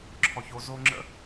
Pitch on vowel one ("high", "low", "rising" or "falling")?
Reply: low